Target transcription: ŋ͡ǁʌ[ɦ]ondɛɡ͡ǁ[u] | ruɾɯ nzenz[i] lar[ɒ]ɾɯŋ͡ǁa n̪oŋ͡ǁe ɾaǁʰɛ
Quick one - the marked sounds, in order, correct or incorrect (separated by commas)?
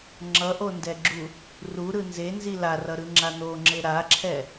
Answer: incorrect, correct, correct, incorrect